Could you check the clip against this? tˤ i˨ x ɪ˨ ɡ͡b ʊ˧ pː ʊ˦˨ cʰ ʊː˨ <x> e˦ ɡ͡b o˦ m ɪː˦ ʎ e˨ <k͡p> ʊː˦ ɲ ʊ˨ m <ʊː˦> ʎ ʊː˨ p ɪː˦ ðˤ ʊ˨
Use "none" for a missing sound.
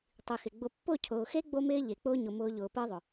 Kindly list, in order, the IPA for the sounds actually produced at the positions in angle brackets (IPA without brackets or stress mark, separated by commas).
x, k͡p, ʊː˧